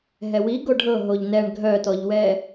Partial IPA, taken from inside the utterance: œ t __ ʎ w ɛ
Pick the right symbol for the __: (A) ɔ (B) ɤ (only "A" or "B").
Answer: A